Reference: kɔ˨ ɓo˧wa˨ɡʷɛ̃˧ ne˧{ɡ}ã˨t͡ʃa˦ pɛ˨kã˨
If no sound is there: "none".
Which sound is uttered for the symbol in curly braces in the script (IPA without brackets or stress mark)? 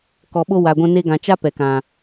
ɡ